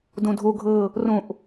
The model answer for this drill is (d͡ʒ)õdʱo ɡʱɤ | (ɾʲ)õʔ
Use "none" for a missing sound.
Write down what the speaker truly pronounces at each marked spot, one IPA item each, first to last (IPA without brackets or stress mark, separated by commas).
d, r